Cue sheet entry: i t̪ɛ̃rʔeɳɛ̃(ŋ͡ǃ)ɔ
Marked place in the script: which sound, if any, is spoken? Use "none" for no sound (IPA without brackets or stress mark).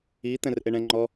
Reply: ŋ͡ǃ